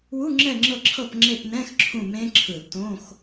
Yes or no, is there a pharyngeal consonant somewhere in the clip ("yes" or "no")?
no